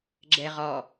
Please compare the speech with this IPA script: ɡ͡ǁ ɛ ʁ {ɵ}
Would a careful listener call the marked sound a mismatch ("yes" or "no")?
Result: yes